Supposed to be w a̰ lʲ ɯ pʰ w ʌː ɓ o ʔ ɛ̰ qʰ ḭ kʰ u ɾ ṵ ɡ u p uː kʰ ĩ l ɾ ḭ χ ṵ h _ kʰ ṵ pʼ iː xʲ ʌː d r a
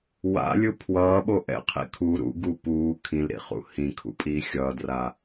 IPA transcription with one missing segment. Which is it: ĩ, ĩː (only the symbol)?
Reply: ĩ